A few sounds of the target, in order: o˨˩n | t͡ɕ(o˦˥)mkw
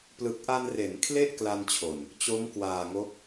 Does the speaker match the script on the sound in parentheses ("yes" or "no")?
yes